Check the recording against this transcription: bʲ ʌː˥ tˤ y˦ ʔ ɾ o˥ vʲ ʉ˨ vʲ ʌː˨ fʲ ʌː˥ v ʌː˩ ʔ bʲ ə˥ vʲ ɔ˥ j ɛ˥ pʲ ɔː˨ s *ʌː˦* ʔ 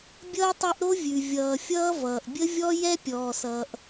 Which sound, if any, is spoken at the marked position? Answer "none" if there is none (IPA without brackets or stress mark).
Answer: ʌː˨